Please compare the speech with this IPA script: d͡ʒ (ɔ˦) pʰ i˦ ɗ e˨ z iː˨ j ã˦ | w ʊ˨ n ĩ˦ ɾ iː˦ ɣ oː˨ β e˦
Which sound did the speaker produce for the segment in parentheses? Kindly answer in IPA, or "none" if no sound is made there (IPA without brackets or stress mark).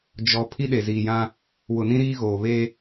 ɔ˨